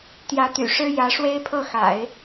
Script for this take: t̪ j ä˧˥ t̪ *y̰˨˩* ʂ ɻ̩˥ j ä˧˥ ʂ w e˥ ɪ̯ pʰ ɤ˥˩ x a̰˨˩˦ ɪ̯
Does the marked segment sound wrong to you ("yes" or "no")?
no